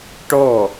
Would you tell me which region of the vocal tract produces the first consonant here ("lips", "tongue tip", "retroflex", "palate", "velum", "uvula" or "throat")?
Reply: retroflex